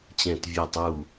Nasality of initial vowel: nasal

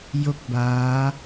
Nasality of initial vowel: oral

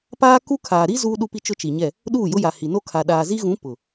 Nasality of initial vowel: oral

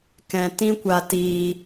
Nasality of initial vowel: nasal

